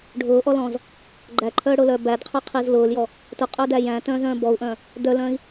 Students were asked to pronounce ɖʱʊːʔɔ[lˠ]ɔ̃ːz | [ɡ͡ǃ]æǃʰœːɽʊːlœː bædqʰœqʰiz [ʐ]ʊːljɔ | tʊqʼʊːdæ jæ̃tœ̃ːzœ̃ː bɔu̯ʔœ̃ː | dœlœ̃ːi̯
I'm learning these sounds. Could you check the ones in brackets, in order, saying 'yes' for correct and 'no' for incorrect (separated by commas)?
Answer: no, yes, no